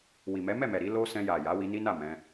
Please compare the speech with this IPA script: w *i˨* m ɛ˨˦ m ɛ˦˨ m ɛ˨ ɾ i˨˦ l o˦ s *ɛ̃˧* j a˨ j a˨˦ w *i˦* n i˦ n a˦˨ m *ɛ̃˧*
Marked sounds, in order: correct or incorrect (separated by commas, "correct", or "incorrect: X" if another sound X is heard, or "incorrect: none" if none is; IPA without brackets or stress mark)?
correct, correct, incorrect: i˧, correct